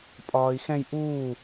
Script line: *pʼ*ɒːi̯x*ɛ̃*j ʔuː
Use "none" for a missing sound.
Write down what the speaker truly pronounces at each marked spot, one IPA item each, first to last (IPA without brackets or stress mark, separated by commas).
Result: pʼ, ɛ̃